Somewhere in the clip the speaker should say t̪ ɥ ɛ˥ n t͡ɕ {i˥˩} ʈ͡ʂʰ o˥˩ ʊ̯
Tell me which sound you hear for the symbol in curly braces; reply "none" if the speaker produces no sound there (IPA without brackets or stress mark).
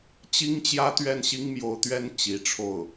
i˧˥